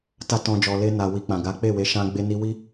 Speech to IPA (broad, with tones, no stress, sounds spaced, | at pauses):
t a˦ t ɔ̃˧ d͡ʒ ɔ˨ l e˧ n a˨ w i˨ k͡p ã˨ ɡ a˨˦ k͡p e˦˨ w e˨˦ ʃ ã˧ ɡ͡b e˧ n i˧ w i˦